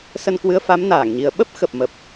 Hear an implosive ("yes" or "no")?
yes